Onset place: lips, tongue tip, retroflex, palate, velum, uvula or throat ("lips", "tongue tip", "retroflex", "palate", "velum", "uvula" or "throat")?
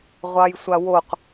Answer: uvula